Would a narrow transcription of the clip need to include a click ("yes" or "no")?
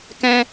no